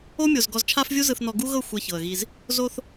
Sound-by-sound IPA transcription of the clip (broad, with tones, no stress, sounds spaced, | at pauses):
o˦ mʲ o˨ z ɡ ɔ˨ z t͡ʃʰ a˦ f vʲ u˦ z ɯ˨ θ n ɔ˨ ɡ u˦ ɣ ɤ˦˨ xʷ ɛ˦ ç ɤ˨ ə̯ ɣ i˦ z | z o˦ θ